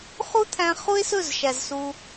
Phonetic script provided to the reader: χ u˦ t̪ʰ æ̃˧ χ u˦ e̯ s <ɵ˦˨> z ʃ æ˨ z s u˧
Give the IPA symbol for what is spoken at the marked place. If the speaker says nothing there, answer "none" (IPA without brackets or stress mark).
ɵ˦˨